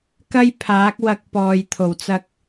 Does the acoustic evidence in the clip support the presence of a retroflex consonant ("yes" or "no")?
no